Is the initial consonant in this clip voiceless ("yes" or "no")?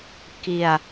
yes